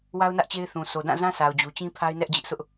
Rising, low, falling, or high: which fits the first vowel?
high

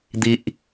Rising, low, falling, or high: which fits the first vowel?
high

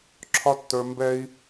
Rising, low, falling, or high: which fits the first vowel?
high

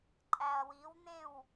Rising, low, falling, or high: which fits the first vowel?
low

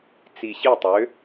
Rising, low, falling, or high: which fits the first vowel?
low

